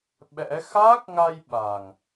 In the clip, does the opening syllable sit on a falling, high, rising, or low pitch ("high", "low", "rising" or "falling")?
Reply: rising